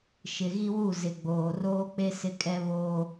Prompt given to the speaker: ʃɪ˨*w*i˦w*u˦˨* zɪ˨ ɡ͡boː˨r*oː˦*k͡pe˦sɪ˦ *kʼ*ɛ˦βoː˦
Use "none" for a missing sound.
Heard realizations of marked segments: ɣ, u˦˨, oː˦, kʼ

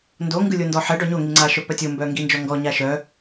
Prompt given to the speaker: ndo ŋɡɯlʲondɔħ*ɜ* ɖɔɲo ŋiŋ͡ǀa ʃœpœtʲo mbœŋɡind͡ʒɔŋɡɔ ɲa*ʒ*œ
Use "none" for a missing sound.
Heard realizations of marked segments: ɛ, ʃ

